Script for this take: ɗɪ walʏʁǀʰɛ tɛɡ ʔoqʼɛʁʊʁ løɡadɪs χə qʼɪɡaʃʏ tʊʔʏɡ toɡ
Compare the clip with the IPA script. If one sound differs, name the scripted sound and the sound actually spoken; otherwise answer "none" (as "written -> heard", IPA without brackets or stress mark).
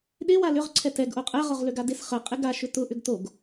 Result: none